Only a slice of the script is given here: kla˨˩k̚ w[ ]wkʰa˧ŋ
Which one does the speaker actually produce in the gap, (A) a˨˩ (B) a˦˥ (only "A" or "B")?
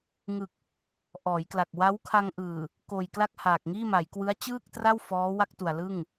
B